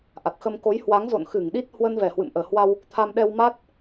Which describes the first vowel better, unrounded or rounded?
unrounded